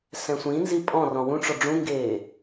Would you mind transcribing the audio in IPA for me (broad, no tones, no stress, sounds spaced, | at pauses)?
s ɛ̃ sʷ ĩ n z i pʼ ɔ̃ r ɔ̃ w ũ ʈ͡ʂ ɔ ɖ͡ʐ ũ ŋ ɡ eː